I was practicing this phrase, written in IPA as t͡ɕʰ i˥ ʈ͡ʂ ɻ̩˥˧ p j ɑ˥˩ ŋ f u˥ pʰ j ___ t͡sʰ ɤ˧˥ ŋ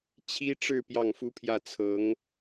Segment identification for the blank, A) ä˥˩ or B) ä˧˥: A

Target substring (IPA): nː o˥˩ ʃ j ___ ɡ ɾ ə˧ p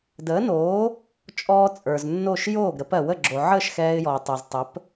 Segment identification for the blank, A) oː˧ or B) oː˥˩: B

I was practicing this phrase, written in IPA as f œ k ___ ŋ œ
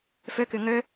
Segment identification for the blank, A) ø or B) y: A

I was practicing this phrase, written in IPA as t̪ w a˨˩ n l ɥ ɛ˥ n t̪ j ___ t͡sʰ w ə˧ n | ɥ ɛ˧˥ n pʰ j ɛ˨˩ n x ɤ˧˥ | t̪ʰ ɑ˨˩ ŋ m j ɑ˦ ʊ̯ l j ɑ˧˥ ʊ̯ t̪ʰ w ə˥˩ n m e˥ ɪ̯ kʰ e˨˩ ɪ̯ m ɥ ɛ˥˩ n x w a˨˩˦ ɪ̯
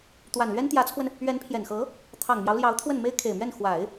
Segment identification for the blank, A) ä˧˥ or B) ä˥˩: A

